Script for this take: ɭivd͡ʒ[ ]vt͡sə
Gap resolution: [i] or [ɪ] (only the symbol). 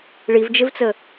ɪ